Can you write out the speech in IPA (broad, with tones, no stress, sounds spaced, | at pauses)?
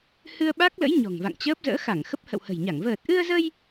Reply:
h ɨ˧ ə̯ ɓ a˦˥ k̚ l ə̰˧˥ j ɲ ɔ̤˨˩ ŋ v a̰˧˨ ŋ t͡ɕ əː˦˥ p̚ z ə̰ː˧˥ x a˧˩ ŋ x ə˦˥ p̚ h ə̰˧˨ w h ə̤˨˩ j ɲ a˧˩ ŋ v əː˨˩ t̚ ʔ ɨ˧ ə̯ z ə˧ j